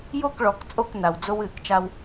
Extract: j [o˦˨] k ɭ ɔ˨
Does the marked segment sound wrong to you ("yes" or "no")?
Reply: no